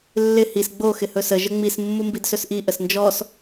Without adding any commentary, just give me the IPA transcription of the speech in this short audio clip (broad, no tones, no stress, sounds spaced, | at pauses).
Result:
lː ɪ h i s ɡ͡b o x ɪ h ɵ s ə ʒ ə ŋ͡m i s mː u m b i d s ɵ s ʔ i ʔ ə s n d͡ʒ ɔ s